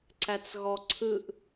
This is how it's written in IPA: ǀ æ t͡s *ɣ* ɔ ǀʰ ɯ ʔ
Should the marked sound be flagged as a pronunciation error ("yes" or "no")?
no